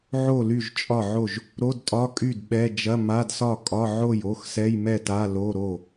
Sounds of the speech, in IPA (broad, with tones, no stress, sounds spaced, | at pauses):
ʕ o˥˩ l y˥˩ ʒ t͡ʃʼ ɒ˥˩ ʕ o˥˩ ʒ | ɾ o˧˥˧ d tʼ ɒ˧˥˧ kʼ y˥˩ d ɓ ɛ˧˥˧ d͡ʒ ɐ˧˥˧ m a˧˥˧ d s ɒ˥˩ kʼ ɒ˧˥˧ ʕ o˥˩ j o˧˥˧ x s ɛ˧˥˧ j m ɛ˥˩ t a˧˥˧ l o˧˥˧ ɾ o˥˩